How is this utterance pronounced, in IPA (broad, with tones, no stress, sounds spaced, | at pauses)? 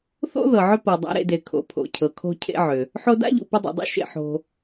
θ o̰˥ ð ɤ˩ ʕ ʏ˦ p ɤ˩ dˤ a̰˨ ɾ ḛ˨ d e˩ kʰ o̰˩ pʰ o̰˩ cʰ ɤ˩ kʰ o̤˨ cʰ ḛ˨ ʕ ʏ˩ | ħ o˦ d a̰˥ ʎ ṵ˩ p ʏ˦ dˤ ṵ˩ dˤ ṵ˥ ʃ ḛ˨ ħ o̤˨